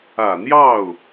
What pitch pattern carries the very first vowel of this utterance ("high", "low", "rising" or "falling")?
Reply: low